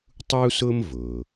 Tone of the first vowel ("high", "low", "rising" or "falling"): high